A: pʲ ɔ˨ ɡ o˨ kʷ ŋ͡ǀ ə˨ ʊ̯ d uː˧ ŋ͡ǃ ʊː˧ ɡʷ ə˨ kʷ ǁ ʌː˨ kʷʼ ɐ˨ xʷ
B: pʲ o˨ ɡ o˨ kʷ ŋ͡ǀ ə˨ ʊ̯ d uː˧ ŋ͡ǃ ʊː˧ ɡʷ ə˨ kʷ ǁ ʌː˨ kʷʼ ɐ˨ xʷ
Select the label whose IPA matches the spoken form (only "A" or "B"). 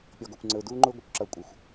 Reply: A